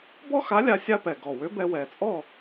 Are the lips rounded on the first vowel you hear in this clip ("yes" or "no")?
yes